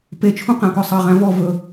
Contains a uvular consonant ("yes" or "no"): yes